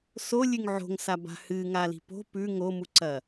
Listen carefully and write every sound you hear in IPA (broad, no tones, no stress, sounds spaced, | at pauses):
s o lʲ ʉ ŋ ʕ o̤ ŋ s a b a̤ h ɨ ŋ a l i̤ p o̤ p ʉ ŋ o m u ǀ ɐ